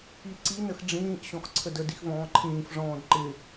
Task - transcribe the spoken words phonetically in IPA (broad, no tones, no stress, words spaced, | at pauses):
iǀi nəxɖ͡ʐĩːʔ ɕɔ̃xǀʰədə dixvɔ̃ːǃʰĩːf ʐɔ̃ːdǃɪ